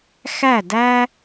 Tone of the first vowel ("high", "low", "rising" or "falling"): falling